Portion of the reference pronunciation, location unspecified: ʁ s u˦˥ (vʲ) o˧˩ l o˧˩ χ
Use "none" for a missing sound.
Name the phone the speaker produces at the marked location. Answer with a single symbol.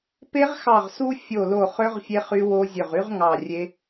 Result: fʲ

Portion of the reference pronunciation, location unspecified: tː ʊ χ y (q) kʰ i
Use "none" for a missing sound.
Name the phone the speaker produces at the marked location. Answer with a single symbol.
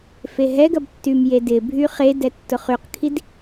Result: q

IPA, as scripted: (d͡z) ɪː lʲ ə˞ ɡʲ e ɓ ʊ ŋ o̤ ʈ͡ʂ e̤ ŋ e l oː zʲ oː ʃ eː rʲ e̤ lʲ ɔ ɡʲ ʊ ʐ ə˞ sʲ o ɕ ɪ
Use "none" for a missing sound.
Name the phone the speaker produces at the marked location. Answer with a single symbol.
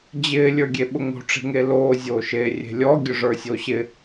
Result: d͡ʑ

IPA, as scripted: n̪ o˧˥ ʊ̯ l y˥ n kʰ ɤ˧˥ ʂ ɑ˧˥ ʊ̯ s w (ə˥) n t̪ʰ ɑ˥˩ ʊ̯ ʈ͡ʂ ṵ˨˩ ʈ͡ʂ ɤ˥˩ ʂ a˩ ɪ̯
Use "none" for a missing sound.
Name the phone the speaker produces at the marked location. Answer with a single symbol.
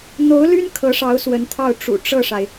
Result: ə˧˥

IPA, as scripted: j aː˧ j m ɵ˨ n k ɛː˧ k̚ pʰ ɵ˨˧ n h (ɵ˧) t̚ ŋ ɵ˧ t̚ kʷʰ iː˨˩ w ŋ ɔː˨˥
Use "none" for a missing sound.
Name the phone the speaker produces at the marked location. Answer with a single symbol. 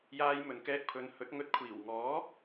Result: ɵ˨˥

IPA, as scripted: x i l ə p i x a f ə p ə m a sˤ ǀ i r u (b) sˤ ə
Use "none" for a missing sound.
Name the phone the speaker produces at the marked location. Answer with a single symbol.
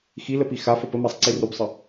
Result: b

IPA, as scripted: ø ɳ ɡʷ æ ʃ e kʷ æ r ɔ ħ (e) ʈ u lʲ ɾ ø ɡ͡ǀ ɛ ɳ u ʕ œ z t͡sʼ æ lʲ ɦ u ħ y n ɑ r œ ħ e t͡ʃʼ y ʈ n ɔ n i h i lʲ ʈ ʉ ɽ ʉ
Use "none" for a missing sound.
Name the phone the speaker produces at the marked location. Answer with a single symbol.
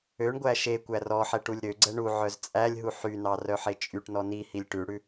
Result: ɛ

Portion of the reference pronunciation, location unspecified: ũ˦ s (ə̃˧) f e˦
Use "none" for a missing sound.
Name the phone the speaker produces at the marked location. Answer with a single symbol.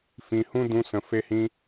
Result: ə̃˧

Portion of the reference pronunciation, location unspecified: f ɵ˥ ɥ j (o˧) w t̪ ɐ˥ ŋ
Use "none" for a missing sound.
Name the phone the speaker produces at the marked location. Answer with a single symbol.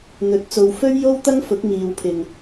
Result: o˥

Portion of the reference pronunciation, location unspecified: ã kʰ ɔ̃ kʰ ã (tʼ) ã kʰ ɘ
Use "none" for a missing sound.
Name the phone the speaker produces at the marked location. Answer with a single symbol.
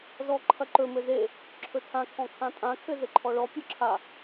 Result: tʼ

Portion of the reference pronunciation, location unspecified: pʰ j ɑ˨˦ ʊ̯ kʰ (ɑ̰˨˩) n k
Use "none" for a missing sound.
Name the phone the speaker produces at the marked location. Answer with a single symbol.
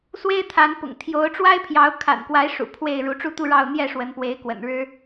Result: a̰˨˩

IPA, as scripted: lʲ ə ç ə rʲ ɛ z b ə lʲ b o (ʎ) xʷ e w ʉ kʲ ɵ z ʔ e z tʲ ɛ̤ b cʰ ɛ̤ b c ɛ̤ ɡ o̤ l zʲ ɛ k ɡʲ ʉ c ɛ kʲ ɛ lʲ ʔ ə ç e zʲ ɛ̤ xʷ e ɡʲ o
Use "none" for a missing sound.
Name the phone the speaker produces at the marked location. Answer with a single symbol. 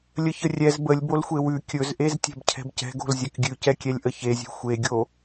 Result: l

